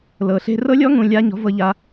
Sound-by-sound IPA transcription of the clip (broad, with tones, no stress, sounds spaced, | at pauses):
l ɤ˨ ɬ e̤˦ r ɤ˦ lʲ ɔ˦ ŋ ũ˨ lʲ a˧ ɲ ɔ̤˨˦ v ɤ˧ ʎ a˧